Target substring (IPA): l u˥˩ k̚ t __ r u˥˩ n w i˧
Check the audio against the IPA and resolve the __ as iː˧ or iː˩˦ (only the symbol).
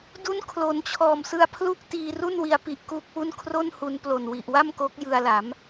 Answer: iː˧